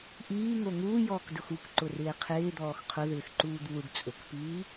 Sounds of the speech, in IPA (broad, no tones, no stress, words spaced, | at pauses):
ʔiːŋo ŋuːjɔːkdʊx ukǃʊrɪː qʰɪːd̪ɔːx qʰʊðɪːxǃuːd̪uːɖ t͡sʼʊkpiː